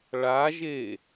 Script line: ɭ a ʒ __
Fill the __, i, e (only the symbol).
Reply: e